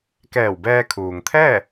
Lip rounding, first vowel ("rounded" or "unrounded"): unrounded